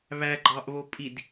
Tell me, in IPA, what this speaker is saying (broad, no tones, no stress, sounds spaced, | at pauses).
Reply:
β æ ɡ͡ǃ ɑ ʔ β o pʼ i d